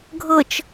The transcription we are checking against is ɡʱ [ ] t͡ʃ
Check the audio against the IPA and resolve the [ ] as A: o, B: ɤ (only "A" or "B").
B